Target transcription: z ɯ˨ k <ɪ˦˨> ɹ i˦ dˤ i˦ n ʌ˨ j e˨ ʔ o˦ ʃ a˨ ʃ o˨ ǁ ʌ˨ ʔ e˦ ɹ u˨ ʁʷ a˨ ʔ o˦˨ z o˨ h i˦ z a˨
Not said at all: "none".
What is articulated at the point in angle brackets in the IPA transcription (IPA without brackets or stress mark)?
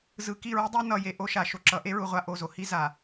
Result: i˦˨